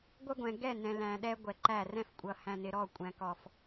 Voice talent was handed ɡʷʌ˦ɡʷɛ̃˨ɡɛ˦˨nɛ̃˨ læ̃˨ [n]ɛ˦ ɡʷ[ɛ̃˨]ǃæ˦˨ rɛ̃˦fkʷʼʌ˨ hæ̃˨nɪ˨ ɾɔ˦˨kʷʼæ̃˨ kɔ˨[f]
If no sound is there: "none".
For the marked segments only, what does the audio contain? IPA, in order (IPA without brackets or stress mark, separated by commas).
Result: ɗ, ɛ˨, f